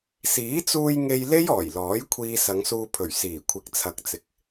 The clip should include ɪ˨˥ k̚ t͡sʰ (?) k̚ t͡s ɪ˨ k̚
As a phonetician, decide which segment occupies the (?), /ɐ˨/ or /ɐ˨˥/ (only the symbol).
ɐ˨